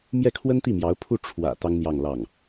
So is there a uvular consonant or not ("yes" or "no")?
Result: no